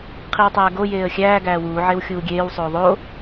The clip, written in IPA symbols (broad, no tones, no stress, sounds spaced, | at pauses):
qʰ i w tˤ æː ɡ o j eː ə̯ xʲ æː ɡ æː w uː ʕ e w xʲ uː ɡʲ eː w sˤ oː ðˤ o